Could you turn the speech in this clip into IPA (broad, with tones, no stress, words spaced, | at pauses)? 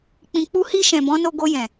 k͡pĩ˨k͡pu˧hi˧ ʃɛ̃˨bɔ̃˨˦no˧ ɡo˧jɛ̃˨